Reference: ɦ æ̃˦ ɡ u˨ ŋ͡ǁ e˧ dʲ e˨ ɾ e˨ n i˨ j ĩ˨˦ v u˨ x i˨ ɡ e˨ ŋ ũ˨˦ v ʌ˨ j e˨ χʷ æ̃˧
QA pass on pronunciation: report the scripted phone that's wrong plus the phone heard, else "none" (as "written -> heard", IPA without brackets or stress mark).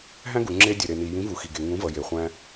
none